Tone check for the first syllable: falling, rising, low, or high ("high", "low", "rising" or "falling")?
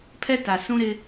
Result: high